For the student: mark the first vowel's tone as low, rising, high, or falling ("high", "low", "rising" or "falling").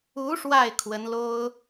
rising